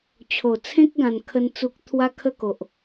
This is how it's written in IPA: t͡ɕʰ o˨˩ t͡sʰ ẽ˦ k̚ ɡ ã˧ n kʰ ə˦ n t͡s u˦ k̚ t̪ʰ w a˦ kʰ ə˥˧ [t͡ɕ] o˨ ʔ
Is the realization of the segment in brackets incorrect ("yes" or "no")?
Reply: yes